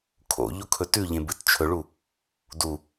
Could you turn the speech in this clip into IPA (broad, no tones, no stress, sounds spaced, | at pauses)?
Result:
kʰ o̰ ʎ o kʰ ɵ t ʉ ʎ ẽ b ɨ t t͡ʃʰ ɵ ɭ u | d u